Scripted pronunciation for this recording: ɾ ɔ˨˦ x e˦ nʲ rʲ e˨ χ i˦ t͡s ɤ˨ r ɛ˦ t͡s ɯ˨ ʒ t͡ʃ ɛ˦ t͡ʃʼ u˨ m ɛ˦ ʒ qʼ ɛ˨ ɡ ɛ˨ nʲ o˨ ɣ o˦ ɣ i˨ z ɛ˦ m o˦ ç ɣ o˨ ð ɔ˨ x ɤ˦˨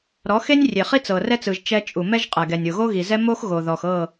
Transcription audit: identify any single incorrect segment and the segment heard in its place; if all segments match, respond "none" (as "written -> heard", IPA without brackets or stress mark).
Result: ç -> x